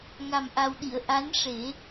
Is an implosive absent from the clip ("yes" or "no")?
no